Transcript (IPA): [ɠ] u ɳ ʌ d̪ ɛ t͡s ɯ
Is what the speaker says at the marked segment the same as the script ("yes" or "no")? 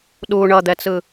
no